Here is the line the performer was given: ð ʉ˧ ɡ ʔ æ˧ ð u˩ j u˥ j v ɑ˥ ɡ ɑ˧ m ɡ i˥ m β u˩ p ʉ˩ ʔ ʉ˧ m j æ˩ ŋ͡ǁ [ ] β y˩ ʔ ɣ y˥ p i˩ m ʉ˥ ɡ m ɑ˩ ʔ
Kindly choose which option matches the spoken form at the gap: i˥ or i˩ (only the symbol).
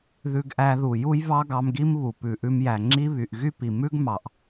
i˥